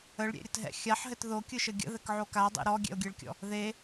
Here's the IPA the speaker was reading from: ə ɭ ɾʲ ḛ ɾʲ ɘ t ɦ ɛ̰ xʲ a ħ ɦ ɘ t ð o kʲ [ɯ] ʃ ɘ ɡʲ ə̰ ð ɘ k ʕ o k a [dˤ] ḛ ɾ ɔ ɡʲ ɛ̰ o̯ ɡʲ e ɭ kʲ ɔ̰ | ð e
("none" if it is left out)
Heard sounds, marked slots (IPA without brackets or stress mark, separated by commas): ɯ, dˤ